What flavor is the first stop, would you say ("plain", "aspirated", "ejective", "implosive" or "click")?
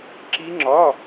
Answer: click